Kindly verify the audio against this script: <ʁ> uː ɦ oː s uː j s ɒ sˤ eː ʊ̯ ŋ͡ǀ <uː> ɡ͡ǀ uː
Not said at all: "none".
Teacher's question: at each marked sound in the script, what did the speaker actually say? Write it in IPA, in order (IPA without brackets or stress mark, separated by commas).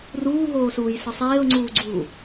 r, uː